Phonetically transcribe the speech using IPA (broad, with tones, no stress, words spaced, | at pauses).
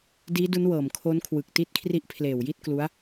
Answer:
diː˦˥du˦˥nwɤː˨˩mkʰo˦˥n kʰwɯ˨˩k̚ti˦˥t̚ kʰri˦˥ʔpʰleː˨˩wji˥˩t̚klu˦˥a̯